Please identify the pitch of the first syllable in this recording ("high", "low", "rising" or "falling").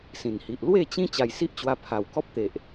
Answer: low